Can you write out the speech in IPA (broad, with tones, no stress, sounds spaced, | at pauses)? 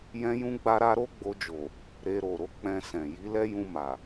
j ɛ̃˦ j ũ˦ ɡ͡b a˦ ɾ a˦ ɾ o˦ ɡ͡b o˧ d͡ʒ o˨ | ɾ e˧ ɾ o˨ ɾ o˨˦ k͡p ɛ̃˧ s ɛ̃˨ j i˨˦ l ɛ˦ j ũ˧ m a˨